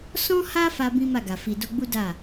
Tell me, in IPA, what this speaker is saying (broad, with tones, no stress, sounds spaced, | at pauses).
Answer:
s ɔ̃˦ h a˦ f a˦ b ĩ˦ m a˦˨ ɡ a˨ f i˧ d o˦ ɡ͡b u˦ d a˦˨